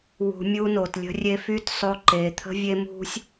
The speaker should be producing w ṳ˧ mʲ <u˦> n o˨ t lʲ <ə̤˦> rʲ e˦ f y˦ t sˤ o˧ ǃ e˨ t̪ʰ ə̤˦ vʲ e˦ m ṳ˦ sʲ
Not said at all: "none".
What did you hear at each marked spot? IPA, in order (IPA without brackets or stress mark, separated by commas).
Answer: u˦, ə̤˦